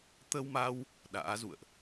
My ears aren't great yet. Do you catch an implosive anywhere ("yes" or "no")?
yes